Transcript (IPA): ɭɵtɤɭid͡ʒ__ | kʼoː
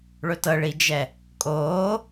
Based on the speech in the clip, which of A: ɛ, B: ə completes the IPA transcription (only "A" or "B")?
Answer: A